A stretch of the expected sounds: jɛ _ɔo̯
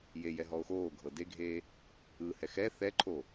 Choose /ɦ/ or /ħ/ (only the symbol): ɦ